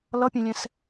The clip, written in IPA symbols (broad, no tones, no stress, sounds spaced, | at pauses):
l ʌ pʲ ẽ lʲ ɛ̃ s